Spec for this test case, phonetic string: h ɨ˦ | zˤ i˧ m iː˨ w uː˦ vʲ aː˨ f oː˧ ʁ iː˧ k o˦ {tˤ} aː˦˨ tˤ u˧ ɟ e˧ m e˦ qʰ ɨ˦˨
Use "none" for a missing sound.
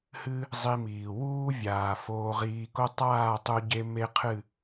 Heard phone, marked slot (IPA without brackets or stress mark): tˤ